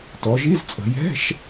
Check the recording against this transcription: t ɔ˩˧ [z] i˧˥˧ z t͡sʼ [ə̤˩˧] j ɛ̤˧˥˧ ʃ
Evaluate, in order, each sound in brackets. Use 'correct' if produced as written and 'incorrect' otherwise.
incorrect, correct

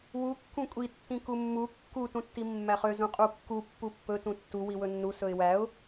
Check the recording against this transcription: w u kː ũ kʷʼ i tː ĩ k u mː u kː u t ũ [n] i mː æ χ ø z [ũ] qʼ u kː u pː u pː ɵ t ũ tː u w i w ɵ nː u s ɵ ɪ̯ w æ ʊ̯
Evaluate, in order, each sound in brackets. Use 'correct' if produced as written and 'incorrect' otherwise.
incorrect, correct

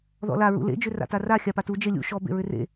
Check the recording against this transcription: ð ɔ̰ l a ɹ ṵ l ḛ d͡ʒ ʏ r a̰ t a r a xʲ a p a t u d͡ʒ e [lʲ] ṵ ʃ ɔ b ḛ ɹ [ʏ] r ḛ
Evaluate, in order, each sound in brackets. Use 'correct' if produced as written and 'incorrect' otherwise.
correct, correct

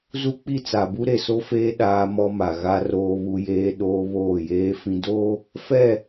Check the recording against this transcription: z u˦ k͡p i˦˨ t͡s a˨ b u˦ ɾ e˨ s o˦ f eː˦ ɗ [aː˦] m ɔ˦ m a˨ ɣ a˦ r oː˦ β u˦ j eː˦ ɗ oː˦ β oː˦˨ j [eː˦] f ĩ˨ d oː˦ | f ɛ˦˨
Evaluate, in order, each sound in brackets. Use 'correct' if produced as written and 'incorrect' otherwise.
correct, correct

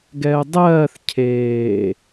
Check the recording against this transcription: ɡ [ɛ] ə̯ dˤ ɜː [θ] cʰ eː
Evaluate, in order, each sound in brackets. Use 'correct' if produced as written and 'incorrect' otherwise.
correct, correct

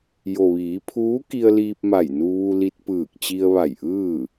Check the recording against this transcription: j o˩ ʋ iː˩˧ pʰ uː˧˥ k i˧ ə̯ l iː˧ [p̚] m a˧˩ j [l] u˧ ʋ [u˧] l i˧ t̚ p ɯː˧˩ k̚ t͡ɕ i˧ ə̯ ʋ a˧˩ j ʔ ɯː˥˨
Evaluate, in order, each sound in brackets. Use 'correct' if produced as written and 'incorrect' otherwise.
correct, incorrect, correct

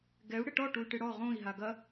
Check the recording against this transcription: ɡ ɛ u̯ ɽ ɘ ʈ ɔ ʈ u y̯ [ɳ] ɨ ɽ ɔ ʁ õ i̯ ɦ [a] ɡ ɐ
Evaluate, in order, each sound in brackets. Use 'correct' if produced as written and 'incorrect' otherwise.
incorrect, correct

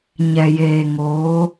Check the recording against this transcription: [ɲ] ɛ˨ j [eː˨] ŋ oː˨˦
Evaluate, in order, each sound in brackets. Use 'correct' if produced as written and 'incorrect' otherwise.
correct, correct

